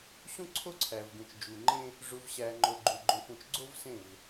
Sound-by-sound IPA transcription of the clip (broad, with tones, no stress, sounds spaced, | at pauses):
ɕ ũ˦ ǀʰ o˦ ǀʰ æ˨ v ɡ ũ˨ t͡ʃ d͡ʒ u˨ ŋ͡ǃ ẽ˦ | ʐ u˨ v ɕ æ˨ ŋ͡ǃ o˨ ɡ͡ǃ u˨ ɡ͡ǃ õ˨ f ũ˨ t͡ʃ ɡ͡ǀ o˦ v s ẽ˦˨ v